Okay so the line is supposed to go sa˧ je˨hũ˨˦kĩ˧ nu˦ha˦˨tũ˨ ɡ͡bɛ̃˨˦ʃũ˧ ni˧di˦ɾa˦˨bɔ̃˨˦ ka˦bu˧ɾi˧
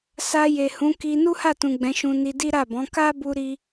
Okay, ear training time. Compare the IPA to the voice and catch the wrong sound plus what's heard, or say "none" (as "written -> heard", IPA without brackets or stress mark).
ĩ˧ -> i˧